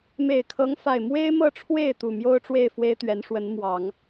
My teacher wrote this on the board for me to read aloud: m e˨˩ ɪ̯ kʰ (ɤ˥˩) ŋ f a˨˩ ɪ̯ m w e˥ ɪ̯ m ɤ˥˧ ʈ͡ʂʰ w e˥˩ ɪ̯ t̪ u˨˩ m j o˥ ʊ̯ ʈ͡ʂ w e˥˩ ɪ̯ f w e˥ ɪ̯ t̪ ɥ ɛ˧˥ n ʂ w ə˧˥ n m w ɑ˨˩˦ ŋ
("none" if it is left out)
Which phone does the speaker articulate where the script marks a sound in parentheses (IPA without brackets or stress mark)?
ɤ˧˥